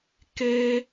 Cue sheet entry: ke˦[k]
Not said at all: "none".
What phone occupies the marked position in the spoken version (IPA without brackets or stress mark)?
none